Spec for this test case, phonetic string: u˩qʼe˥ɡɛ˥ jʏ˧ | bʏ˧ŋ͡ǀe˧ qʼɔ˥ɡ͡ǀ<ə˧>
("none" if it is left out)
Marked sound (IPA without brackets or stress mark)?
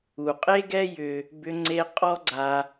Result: a˧